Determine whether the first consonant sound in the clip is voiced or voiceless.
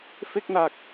voiceless